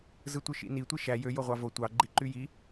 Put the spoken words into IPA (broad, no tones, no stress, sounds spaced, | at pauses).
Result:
z ɯ tʷ ɯ ʃ ḭ n i tʷ i ʃ æ j ø j o ʁʷ ɑ v o tʷ ɑ ɡ͡ǃ i ǃ y j i